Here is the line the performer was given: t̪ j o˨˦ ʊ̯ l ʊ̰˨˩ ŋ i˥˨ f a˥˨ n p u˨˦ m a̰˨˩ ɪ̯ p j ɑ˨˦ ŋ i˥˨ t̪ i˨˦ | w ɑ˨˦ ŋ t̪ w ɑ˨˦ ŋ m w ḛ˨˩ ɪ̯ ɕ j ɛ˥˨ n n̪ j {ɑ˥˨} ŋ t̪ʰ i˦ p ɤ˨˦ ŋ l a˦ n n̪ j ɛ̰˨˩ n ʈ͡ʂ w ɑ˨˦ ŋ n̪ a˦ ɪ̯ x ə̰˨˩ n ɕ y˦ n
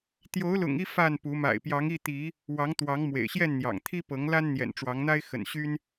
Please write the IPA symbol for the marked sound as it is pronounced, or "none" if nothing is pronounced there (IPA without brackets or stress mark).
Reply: ɑ̰˨˩